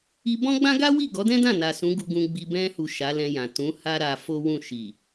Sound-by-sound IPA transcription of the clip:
i˧ b ɔ̃˦ ɡ͡b ã˦ ɡ a˦ w i˦˨ ɡ ɔ˨˦ d ɛ̃˦ d ã˦˨ n a˨ s ũ˨˦ ɡ u˧ ɡ ũ˧ ɡ͡b i˧ b ɛ̃˧ h u˨ ʃ a˨˦ l ɛ̃˧ j ã˨ t ũ˨˦ h a˦ ɾ a˧ f o˦ w ũ˦˨ ʃ i˨

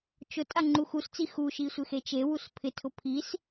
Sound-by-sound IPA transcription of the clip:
t͡ʃ ʊ tʼ a ŋ͡ǃ u x u s t͡s i x u ʃ i sʷ ɪ x e t͡ʃ e w u s pʰ ɪ tʰ ʊ pʰ i s

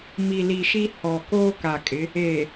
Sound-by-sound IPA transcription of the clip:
m i˨ l i˨ ʃ i˦ h ɔ˨ k oː˦ k a˨ kʼ ɪ˨˦ | eː˨

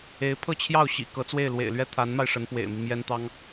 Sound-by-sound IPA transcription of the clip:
e˧˥ ɪ̯ pʰ ɤ˥˧ t͡ɕʰ j ɑ˥˩ ʊ̯ ɕ ḭ˨˩ k ɤ˧˥ t͡s w e˥˩ ɪ̯ l w ḛ˨˩ ɪ̯ l ɥ ɛ˥˩ t̪ʰ a˧˥ n m a˧ ɪ̯ ʂ ə˧˥ n p w ḛ˨˩ ɪ̯ m i˦ m j ɛ˥ n t̪ ɑ˥ ŋ

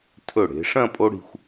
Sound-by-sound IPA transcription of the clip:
tʰ ɵ˧˩ ɽ e̤˩˧ ʂ ɐ̃˥˧ pʼ o˥ ɽ i̤˧ xʷ

